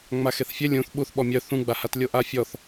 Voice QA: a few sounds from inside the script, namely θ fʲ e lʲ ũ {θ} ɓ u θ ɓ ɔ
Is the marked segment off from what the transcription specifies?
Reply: no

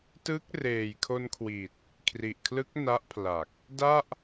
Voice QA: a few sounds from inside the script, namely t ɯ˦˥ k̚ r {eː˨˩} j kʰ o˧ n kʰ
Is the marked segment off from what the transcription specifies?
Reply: no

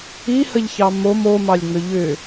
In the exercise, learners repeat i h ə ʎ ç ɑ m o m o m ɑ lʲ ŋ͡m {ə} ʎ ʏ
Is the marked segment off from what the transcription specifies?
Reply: yes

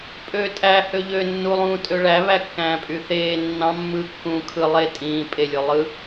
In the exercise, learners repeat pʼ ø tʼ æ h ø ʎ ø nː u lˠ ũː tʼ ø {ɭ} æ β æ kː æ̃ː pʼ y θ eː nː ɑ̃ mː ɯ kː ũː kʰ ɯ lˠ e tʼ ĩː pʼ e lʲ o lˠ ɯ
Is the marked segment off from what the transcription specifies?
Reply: no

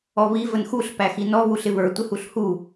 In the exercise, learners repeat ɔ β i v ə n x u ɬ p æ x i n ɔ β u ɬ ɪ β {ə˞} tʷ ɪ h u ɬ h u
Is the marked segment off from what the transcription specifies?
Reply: no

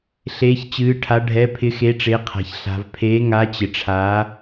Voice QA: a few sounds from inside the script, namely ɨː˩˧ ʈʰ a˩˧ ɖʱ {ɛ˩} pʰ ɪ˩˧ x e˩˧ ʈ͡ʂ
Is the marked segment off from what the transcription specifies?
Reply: yes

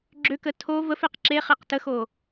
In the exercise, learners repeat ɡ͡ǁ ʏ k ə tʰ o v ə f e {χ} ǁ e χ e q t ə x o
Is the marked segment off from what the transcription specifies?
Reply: yes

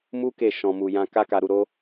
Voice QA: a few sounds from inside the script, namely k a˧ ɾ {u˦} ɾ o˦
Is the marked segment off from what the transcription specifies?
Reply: yes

